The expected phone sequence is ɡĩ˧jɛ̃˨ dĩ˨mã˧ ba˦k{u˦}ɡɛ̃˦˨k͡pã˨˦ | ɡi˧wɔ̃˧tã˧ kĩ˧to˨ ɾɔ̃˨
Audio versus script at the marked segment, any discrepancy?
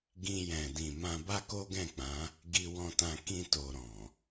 yes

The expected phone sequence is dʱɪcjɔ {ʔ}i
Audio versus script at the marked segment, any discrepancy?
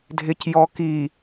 yes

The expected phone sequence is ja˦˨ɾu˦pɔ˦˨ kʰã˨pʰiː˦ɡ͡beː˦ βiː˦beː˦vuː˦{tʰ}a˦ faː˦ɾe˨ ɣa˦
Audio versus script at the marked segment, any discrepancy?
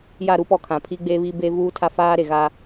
no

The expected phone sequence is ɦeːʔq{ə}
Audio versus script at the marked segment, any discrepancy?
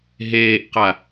yes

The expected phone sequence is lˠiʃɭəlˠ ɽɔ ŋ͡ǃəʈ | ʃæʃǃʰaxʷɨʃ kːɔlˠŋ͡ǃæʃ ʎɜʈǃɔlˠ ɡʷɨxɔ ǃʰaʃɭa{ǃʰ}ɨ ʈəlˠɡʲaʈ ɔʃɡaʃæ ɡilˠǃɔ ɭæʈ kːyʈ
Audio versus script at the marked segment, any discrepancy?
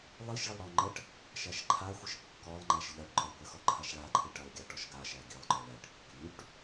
no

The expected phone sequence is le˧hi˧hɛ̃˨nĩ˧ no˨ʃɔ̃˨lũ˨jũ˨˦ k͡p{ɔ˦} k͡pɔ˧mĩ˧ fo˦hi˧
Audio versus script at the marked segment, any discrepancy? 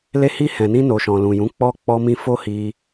yes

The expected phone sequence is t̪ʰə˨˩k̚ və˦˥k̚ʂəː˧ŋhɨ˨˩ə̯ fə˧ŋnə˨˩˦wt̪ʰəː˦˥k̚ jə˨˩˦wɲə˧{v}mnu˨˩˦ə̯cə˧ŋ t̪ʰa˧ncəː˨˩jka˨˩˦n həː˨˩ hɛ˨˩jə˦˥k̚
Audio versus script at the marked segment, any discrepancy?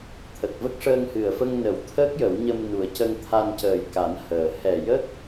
yes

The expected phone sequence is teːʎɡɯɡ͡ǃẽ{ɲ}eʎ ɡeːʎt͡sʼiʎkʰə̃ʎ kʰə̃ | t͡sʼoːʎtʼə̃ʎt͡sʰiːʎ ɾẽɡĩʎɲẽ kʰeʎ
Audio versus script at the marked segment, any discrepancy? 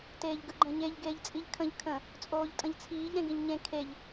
no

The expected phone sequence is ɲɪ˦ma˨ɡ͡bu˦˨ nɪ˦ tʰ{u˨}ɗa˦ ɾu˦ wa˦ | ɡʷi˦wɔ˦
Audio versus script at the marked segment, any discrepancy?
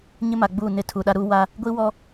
no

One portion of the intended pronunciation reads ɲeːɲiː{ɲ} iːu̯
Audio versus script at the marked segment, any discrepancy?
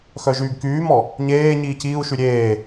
yes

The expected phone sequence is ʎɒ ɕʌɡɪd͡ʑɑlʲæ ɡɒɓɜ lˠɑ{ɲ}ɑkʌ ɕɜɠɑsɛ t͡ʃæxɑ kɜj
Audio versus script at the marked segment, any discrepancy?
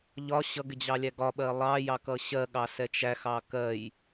yes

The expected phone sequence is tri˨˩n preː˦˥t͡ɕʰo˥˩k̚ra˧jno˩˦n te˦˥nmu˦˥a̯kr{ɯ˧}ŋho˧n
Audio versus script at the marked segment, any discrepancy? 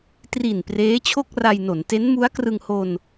no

